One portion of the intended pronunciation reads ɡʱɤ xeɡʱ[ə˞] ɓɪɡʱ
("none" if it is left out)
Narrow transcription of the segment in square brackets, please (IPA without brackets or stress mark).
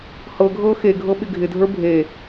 ɤ